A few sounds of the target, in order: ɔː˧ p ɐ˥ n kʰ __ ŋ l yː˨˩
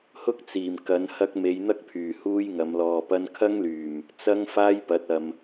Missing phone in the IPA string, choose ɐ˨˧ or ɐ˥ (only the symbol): ɐ˥